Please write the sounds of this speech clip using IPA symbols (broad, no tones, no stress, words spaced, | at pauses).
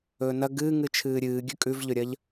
ɵːnɐ ɡɨːŋɨ t͡ʃʰɨːɾʲɨː ɡʲʉkʼʉvʎɵɾʲɐʎ